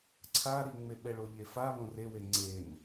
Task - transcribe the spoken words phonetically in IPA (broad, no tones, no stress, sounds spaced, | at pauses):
ǀʰ a ɾ i ŋ͡m e ɓ ɛ ɭ o ʎ e f a β õ r e w e ŋ͡ǀ e n